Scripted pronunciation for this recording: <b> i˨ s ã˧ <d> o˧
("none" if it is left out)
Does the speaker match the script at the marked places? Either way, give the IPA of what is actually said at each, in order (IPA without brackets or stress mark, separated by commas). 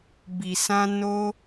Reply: b, n